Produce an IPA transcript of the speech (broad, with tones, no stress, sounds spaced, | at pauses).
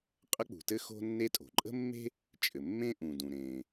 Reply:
qʼ ə˥ k͡p ṳ˩ t ɘ˥ x o̤˥ nː e˥ tʼ o̤˩ ǃʼ ə̤˥ mː e̤˥ | t͡ʃʼ ɘ˩ mː ẽ˥ ʔ ũ˩ d ũ˩ ɾ ẽ˩